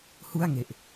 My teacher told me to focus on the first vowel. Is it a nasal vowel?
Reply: no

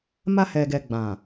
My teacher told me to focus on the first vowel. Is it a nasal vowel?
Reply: no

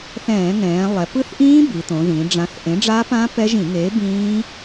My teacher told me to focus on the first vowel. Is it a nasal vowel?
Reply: yes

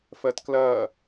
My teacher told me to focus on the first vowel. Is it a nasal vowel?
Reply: no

